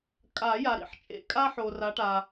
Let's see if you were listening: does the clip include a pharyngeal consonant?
yes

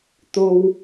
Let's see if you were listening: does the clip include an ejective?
no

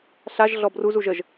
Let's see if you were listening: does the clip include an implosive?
no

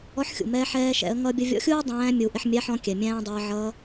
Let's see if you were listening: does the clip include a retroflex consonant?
no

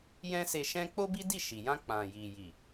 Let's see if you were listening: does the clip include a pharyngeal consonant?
no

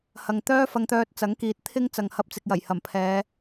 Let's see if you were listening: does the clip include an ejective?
no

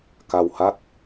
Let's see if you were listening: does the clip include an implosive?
no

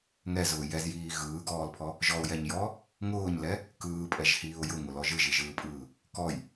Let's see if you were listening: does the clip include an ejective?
yes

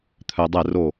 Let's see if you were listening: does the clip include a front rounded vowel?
yes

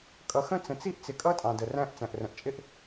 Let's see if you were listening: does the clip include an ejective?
yes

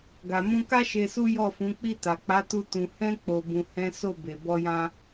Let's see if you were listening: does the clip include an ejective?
no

